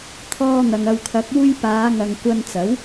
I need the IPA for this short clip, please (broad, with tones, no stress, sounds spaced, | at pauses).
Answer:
t̪ʰ ɔː˧ n̪ ɐ˨ ŋ ɐ˨ w kʰ ɐ˨˥ k̚ uː˧ j p aː˨˧ ŋ ɐ˨ ŋ kʷ ɐ˧ n t͡s ɐ˨˥ w